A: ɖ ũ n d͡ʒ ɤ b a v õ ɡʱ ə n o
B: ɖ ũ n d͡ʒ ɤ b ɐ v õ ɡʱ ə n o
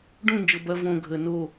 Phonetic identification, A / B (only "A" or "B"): B